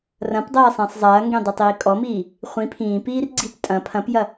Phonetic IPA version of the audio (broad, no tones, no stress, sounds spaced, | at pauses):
r ɐ̃ p dˤ ɐː sˤ ẽ sˤ zˤ ɐː ŋ ɡ ẽ dˤ ɐ tˤ iː kʼ ɔ m iː | χʷ ĩ pʰ ĩː p iː r ɡ͡ǀ i p tʼ ɐ̃ pʰ ɐ̃ p j ɐ